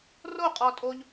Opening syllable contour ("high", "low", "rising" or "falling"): falling